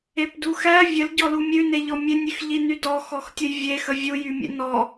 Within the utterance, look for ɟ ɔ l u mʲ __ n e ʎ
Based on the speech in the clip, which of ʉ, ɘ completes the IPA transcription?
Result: ʉ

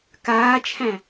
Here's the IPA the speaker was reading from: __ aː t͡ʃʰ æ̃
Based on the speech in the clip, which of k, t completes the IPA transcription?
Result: k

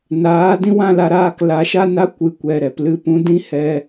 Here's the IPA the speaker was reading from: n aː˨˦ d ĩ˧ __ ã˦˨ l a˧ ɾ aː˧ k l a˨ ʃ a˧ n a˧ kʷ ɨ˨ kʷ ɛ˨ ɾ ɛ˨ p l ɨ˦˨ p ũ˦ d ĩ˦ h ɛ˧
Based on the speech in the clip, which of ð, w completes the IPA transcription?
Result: w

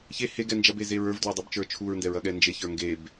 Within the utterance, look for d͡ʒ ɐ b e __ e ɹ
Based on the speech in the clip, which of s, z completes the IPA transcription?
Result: z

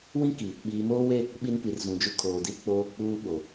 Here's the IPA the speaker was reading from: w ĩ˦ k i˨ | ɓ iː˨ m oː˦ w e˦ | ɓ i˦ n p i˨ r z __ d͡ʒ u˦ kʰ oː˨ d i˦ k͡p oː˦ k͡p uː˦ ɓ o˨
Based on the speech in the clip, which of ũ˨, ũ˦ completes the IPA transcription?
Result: ũ˨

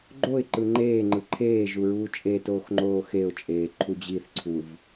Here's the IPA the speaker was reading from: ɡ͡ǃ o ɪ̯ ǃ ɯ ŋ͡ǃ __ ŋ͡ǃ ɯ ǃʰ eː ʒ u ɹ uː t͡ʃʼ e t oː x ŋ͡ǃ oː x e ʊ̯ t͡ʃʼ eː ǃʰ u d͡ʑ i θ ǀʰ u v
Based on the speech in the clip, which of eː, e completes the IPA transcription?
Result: eː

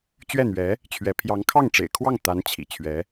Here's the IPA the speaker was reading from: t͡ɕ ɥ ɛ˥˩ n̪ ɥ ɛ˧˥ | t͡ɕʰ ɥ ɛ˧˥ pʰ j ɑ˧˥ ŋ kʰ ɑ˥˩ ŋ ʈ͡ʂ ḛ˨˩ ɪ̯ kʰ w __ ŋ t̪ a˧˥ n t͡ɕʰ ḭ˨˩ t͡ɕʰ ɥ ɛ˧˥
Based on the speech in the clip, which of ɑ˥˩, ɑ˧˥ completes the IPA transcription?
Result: ɑ˥˩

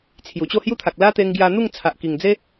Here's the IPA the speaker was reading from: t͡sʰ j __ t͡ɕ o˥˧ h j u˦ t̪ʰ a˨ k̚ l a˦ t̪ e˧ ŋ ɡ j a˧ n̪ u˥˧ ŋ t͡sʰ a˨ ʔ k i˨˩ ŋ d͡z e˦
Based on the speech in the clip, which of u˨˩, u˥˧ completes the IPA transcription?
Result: u˨˩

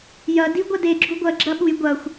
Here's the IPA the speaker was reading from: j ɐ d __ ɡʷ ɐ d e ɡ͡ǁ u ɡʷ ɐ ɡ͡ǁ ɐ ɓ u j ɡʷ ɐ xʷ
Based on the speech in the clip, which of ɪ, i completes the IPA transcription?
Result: i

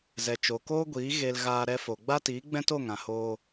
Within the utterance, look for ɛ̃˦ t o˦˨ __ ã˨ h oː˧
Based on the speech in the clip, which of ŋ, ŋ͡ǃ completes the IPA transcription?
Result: ŋ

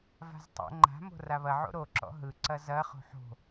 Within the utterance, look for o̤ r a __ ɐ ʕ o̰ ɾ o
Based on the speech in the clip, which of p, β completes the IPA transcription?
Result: β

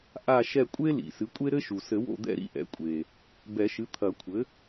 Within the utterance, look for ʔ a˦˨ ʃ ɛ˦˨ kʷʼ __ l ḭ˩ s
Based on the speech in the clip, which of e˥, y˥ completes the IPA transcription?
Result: e˥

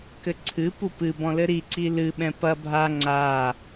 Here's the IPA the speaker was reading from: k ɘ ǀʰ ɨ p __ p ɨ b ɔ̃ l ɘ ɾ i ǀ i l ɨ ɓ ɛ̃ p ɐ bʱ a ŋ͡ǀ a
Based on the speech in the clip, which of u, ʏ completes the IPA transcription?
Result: u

